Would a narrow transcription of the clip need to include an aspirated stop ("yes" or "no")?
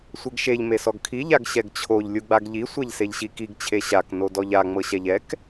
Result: yes